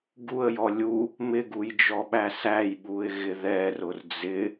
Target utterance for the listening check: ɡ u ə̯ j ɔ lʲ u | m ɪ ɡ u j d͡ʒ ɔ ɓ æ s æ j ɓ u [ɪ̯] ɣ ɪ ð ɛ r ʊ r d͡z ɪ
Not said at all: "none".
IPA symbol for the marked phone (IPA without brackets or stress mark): ɪ̯